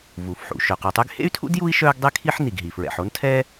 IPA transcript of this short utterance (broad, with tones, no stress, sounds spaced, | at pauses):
v u˩ f ħ ṵ˩ ʃ œ˩ q u˩ tˤ y˥ ɡ h ḛ˥ y̯ tʰ ṵ˥ d j u˥ i̯ ʃ œː˥ ɡ dˤ e˥ kʰ i˥ ħ n i˩ ɡ ɦ i˩ f ɹ ɛ̰˩ ħ o˥ n tʰ ɛː˥